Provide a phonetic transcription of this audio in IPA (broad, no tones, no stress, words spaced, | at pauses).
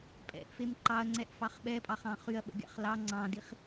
pʼɛ̰ʔfem ǃɑɐ̯ŋ͡ǀɛʔfɑχ ɓɛpʼɑχɑ̃ χyɐ̯ɓə̰ɡʲɑ̰χ lɑ ŋ͡ǀɑ̃diχ